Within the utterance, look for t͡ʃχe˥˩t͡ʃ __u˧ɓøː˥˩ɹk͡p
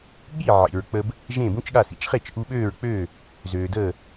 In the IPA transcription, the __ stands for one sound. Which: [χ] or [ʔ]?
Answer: ʔ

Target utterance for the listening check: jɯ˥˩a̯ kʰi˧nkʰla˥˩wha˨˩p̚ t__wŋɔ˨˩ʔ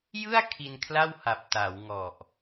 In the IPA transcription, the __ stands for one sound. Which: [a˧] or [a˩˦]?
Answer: a˩˦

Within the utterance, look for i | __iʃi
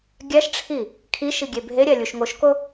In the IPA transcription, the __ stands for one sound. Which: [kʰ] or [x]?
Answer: kʰ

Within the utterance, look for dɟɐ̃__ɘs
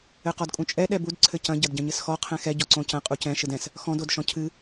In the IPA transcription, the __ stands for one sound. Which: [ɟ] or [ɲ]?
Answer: ɲ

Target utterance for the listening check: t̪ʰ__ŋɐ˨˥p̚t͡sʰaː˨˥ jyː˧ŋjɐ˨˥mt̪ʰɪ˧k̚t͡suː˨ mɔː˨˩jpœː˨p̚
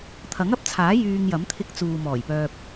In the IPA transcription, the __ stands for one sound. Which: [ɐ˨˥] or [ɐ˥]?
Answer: ɐ˨˥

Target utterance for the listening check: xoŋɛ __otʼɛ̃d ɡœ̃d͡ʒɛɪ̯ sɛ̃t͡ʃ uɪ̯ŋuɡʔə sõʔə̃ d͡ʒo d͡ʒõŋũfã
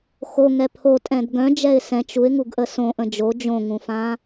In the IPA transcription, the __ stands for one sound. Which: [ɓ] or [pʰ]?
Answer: pʰ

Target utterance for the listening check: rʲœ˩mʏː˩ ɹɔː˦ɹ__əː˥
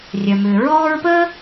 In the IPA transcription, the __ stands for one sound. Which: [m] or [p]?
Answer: p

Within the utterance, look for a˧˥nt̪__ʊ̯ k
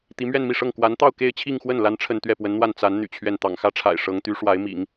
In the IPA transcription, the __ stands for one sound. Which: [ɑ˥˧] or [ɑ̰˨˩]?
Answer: ɑ˥˧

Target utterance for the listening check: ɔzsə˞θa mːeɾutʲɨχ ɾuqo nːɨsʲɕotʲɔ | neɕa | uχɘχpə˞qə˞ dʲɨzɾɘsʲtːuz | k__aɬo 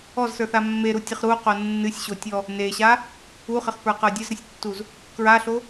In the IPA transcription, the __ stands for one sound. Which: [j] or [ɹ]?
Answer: ɹ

